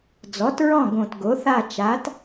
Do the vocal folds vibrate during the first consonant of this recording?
yes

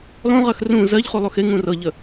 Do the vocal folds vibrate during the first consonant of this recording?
yes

